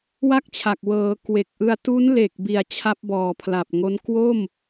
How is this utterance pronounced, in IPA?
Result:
wa˥˩k̚t͡ɕʰa˨˩k̚ wɤː˩˦ kwe˨˩k̚ʔɯ˧a̯ tu˦˥nle˨˩k̚ bi˨˩a̯ t͡ɕʰa˦˥p̚bɔː˨˩pʰla˨˩p̚ ŋo˦˥n kwo˥˩m

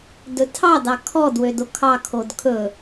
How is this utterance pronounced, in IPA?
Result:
dɵtʰɑ dɑkʰɔd wødokʰɑ kʰodkʰɵ

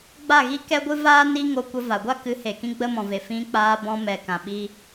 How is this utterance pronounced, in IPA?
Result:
ɡ͡ba˦˨ɣi˦kɛ˦ ɡʷɨ˦vaː˦ni˦ ŋo˧kʷə˧ va˨ɡʷa˦kɨ˨˦he˨ kĩ˦ɡ͡bə˦mɔ̃˨ve˨ fĩ˧ k͡paː˧bɔ̃˧ mɛ˨kã˨ɓi˧

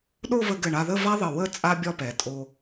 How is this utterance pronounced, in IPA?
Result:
ɗo˥˧və˧ɡɘ˧˩ ɳa˧ðə˥˧va˥ ðˤə˧˩wə˥˧ t͡sʼa˥bʲɒ˥˧pɛ˩˧tʼo˧

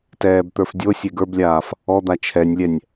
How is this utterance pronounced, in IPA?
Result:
tɛːbt̪ə˞fdʲo sʲeɡə˞blʲaːf | ɔd̪a t͡ʃʰɛnʲlʲɛnʲ

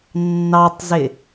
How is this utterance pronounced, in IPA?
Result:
nːɑtˤzɪ

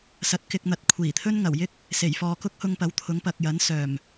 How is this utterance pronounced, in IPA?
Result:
sɐ˨˥t̚kɪ˧k̚n̪ɐ˨˥t̚ kʷʰiː˨˩t̪ʰɵ˥nŋɐ˨˩wjɪ˥k̚ | se˨˩jfɔː˧ kʊ˥k̚hʊ˧ŋ pɐ˨˥wt̪ʰʊ˨˥ŋpɐ˨k̚jɐ˨˥n sœː˨˩m

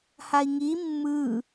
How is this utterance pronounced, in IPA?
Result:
hai̯ŋi mːɯ

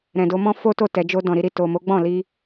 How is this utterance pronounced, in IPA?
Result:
ɾɛ̃˨do˧mɔ̃˦ fo˦to˦˨ tɛ˨d͡ʒo˧ dɔ̃˨ ɾi˧ɾi˨ to˨ mo˨˦ɡ͡bɔ̃˦˨li˧

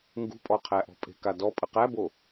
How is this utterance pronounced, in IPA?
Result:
ŋɡṳpʼɔqʰæʔɔ̤ pʼe̤kadɔ pʼəqæbo

